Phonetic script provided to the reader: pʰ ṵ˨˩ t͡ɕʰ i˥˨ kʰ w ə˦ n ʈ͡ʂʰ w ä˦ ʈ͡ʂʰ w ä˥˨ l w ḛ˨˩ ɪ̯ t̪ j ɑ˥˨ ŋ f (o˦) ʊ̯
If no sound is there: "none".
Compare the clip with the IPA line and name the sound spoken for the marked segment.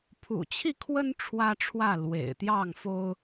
o˦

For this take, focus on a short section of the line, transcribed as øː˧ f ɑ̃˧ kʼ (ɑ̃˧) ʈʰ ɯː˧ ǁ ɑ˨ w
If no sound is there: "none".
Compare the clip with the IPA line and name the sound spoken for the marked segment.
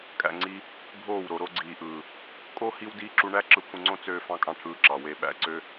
ɑ̃˧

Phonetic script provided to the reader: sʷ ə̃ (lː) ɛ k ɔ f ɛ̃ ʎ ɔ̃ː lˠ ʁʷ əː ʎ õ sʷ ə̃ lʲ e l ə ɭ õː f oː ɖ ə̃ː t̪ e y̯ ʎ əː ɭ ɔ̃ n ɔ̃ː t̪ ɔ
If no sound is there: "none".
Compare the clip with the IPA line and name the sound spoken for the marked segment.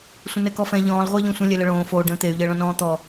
n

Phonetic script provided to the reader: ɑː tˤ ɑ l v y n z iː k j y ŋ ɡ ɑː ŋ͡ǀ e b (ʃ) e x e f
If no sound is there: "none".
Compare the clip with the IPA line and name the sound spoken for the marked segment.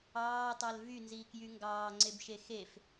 ʃ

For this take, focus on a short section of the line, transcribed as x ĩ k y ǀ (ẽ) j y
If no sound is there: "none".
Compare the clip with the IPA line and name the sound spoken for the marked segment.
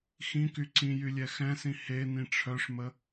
ĩ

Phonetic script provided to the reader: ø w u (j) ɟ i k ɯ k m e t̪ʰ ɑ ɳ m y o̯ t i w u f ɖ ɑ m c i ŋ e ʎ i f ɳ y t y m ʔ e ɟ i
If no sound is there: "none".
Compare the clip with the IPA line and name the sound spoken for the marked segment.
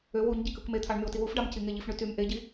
ɲ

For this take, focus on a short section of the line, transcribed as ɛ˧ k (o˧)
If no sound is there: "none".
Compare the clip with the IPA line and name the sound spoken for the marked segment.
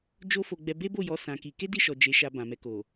o˨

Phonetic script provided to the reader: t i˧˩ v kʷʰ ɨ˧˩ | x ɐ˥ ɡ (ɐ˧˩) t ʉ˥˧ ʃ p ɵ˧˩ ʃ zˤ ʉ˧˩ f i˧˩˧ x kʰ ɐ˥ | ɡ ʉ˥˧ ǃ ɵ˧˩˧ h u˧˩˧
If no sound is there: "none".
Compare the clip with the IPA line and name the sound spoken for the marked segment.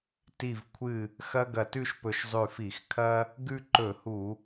ɐ˧˩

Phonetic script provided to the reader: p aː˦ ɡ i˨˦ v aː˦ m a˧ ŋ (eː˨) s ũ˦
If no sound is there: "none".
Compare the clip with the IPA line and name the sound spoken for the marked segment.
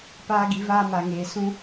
eː˧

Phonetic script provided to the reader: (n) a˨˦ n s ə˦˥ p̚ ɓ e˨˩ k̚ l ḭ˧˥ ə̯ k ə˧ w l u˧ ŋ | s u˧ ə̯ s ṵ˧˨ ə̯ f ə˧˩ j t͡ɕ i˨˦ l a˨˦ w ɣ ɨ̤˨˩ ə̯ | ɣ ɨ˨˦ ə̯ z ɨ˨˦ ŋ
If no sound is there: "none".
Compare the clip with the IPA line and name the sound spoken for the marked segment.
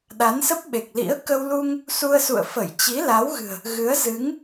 ɗ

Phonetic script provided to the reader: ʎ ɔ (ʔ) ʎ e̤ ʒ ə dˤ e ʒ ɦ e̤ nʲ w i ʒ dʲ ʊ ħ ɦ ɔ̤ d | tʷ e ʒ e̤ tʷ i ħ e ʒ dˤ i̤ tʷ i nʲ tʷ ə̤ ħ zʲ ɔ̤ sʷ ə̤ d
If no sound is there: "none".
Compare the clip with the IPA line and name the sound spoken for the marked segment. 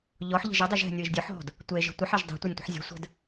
ħ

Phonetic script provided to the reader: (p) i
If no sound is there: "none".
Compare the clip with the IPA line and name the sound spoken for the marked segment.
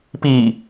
p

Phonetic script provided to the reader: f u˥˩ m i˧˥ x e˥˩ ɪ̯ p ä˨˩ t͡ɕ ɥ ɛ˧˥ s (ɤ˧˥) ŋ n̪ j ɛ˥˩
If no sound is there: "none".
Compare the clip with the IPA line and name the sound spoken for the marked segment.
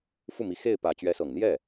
ɤ˨˩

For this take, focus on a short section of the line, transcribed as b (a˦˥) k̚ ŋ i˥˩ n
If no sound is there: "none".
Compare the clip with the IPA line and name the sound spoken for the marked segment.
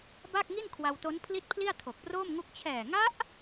a˥˩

